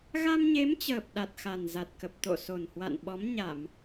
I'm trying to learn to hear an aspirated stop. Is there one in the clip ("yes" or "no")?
no